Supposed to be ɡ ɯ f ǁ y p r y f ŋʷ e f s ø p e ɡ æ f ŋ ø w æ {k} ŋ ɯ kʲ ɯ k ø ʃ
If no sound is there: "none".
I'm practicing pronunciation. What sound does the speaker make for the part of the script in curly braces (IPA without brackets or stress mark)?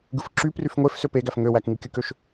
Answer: k